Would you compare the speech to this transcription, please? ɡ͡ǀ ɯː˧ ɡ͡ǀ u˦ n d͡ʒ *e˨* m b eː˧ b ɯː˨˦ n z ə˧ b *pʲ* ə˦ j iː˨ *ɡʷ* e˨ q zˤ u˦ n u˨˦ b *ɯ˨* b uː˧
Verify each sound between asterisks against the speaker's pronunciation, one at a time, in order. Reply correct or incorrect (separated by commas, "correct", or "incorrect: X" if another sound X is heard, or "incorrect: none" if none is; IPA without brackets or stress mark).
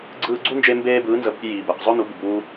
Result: incorrect: e˧, correct, incorrect: b, correct